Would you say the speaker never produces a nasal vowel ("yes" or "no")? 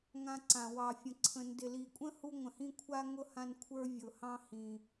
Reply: no